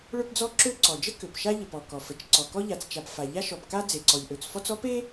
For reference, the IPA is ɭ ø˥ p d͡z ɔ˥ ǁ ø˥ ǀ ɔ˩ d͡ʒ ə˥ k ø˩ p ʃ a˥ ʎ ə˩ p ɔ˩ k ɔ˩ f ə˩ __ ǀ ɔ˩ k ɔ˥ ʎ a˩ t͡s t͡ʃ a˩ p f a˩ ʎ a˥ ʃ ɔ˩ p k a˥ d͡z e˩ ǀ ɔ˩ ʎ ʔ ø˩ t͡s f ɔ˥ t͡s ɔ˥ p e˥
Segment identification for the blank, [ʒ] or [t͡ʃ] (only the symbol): t͡ʃ